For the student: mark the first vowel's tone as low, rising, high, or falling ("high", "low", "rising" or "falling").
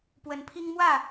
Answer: rising